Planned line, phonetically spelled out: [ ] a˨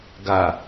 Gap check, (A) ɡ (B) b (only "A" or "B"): A